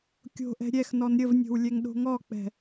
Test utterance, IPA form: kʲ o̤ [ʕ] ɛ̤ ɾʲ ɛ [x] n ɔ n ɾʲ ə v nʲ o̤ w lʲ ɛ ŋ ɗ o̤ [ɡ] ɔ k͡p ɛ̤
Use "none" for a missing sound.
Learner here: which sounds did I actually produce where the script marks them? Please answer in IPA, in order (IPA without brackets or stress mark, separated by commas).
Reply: ʔ, x, ŋ